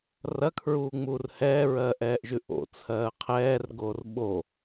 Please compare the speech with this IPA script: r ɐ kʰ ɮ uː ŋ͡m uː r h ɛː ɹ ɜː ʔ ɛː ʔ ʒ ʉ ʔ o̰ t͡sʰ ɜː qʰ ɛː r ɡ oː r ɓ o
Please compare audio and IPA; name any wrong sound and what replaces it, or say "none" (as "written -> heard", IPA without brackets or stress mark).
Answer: ɮ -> ɹ